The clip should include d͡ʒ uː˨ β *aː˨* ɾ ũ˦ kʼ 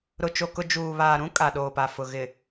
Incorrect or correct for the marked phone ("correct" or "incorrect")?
correct